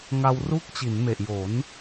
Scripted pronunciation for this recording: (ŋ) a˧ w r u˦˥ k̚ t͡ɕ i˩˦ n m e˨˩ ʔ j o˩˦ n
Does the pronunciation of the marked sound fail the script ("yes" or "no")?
no